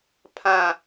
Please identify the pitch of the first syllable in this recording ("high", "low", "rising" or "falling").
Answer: high